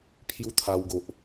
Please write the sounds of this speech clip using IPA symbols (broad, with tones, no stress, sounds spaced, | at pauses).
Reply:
pʰ j u˦ t̪ʰ a˧ w ɡ o˨ ʔ